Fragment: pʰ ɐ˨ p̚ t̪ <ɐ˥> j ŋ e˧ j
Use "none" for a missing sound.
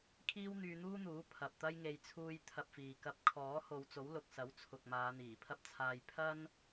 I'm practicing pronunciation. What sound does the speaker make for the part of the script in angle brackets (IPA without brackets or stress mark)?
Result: ɐ˥